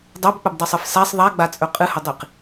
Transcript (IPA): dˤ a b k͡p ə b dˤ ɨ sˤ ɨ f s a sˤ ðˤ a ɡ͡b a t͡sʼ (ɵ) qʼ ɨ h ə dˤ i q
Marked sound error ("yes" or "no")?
no